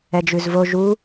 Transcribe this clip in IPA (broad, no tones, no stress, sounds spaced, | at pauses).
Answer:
ɛ d͡ʒ ʉ z v o ʒ u